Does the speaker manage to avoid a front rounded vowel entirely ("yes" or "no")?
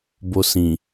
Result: yes